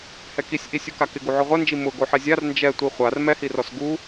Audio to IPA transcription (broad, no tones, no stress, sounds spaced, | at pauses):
h ɛ k i sʲ ʔ i sʲ u k a k ɪ ɡ u ʕ ʊ ʁʷ ɛ n d͡ʒ i m ʊ ɡ o ħ ɛ zʲ a r n d͡ʒ ɛ tʷ i χʷ a r m ɛ h i r ɔ s ɡ u